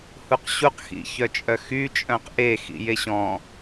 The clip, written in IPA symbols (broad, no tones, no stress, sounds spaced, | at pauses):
h u q ɕ u q x ḭ ç œ t͡ʃʼ œ x y t͡ʃʼ œ̃ q ʔ e x ḭ j e ɕ ɔ̃